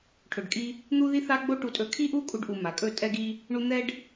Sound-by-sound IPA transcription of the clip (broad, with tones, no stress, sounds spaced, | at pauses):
ʈʰ ɵ˨ ɖ kʼ i˧ | n̪ u˦ ð i˦ θ a˦ ɡ͡b o˦ ʈ u˧ tʼ ɵ˧ kʰ i˦ ʔ u˦ kʼ u˧ ɖ ʔ u˨ m a˨ kʼ ɵ˦˨ tʼ ɛ˧ ɡ i˧ | ɳ u˦ n̪ ɛ˦ ɖ